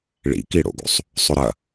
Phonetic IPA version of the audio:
ɭ ḭ k i ɽ o̰ ɡ o̰ sˤ | sˤ ʏ ɾ ɐ

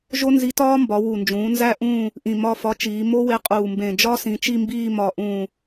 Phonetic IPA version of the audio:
ʒ o˦˥ n z i˨˥ t ɒː˦˥ m b ɒ˩˧ w u˨˩ n d͡ʒ ũː˩˧ n z æ˦˨ ʔ ũː˦˨ | ʔ ĩ˨˩ m ɒ˦˨ f ɒ˨˥ t͡ʃ iː˩˧ m o˦˥ w e˨˥ qʼ uː˨˩ m b ẽ˨˩ d͡ʒ ɒ˦˥ s ĩ˩˧ t͡ʃ i˦˨ m b iː˦˨ m ɒ˨˩ ʔ ũː˨˩

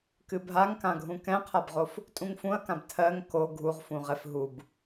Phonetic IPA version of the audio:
k ɨ bʱ a ŋ k ã ɡʱ ũ k ɛ̃ qʰ a b ʁ o f | tʼ ũ ŋ f ũ ɐ̯ k ã b tʰ ɜ ŋ k o ɡʱ u ʁ f ũ ʁ ɛ f ɦ u b

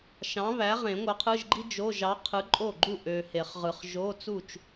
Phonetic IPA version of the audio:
ʃ ɑ̃˨˥ β æ˨˥ ʁ ẽ˨˩˦ ŋʷ ɑ˨˥ qʰ ɯ˧˥˧ ʒ ɡ͡ǃ i˥ d͡ʒ o˧˥˧ ʒ ɑ˨˥ qʰ ɯ˨˥ ǃʼ o˥˩ ɡ͡ǃ u˥˩ ʔ ø˨ h e˨˩˦ χ ʁ ɯ˨ χ ʒ o˧˥˧ t͡s u˥˩ t͡ʃ

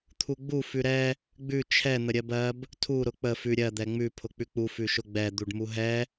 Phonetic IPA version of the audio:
t̪ʰ u ɡ͡b u f ʉ ɾ ɛ | ɡ͡b ʉ t͡ʃʰ ɛ n̪ ə ɾʲ ɜ b ɜ b | tʰ u ɾ ʊ k͡p ə f ʉ ɾʲ ɜ d̪ ɛ ŋ͡m ʉ pʰ ʊ k͡p ʉ k͡p u f ʉ ʃ ʊ ɡ͡b ɛ d̪ u ɖ m u ɦ ɛ

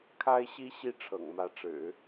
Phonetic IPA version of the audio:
kʰ a˥ ɪ̯ ɕ i˥ ɕ i˥˩ ʈ͡ʂʰ ɤ̰˨˩ ŋ m ä˧˥ ʈ͡ʂ ɻ̩˨˩˦

